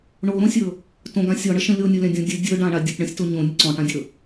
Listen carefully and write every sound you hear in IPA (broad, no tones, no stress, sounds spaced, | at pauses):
ɳ o ɾ õ sʲ ɵ | t õ ɡ ã sʲ ɔ ɳ ə ʃ ə̃ lʲ o nʲ o lʲ ã dʲ ɔ̃ dʲ ɨ dʲ ɵ ɖ ã ɳ a dʲ ɵ p ɳ ə̃ sʲ t o ɲ õ nʲ ə ǀ ɔ̃ ʈ ã dʲ ɵ